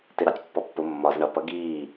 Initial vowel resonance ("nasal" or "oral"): oral